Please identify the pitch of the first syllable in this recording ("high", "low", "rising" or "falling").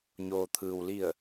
low